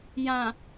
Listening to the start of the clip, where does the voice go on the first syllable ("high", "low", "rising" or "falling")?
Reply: low